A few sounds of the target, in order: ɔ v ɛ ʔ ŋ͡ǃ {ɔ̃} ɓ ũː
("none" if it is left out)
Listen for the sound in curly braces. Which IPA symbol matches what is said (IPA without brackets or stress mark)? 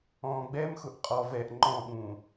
ɔ̃